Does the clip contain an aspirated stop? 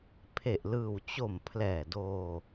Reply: yes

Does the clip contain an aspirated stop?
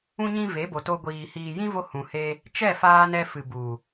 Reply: no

